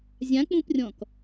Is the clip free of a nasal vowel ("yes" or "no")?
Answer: no